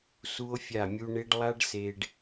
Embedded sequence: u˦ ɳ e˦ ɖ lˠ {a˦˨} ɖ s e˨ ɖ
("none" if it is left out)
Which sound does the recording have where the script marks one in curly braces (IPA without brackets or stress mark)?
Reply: a˦